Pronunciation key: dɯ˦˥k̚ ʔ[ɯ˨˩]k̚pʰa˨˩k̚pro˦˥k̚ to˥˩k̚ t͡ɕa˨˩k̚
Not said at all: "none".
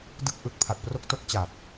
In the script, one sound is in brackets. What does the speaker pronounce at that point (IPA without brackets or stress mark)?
ɯ˨˩